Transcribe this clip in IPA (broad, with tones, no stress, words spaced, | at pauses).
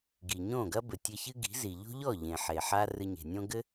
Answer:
ɡi˨ɲõː˦˨ɡɐ˦ bɘ˨tʲɘ˧çɨ˦ ɡi̤˨˦zi˨ ʎo̤˦ʎɔ˦˨ ʎẽ˨ħe˨ ħaː˦rɨ˧ɲe̤˨nʲõ˦ ɡɘ˦